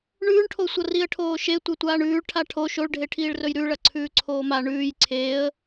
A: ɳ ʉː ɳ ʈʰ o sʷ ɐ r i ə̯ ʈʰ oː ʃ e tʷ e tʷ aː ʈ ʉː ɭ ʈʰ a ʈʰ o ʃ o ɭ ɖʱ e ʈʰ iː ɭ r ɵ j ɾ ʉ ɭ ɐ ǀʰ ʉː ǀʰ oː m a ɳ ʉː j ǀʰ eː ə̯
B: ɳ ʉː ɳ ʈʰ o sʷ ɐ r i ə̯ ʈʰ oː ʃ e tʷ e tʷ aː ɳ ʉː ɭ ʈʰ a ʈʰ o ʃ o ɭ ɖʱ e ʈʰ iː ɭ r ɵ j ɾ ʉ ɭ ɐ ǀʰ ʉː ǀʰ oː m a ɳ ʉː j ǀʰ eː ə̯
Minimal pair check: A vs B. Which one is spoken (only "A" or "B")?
B